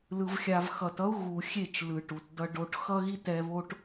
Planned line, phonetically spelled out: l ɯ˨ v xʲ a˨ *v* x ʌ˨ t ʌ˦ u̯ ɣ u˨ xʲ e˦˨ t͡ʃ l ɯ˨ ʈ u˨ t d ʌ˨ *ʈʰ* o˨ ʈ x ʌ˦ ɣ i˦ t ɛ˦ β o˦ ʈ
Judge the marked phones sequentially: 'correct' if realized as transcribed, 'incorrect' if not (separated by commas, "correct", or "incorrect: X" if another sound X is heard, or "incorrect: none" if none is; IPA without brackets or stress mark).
correct, incorrect: ɖ